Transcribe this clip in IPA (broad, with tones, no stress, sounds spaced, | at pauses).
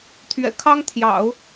t̪ʰ ɥ ɛ̰˨˩ kʰ ɑ˥ ŋ t̪ʰ j ɑ̰˨˩˦ ʊ̯